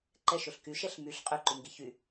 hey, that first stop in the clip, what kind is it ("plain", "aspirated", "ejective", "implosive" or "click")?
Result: click